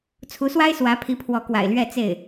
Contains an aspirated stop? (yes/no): yes